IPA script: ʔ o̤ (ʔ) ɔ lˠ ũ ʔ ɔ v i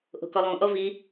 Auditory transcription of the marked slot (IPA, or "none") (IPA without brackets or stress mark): k